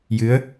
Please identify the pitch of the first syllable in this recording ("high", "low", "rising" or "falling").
rising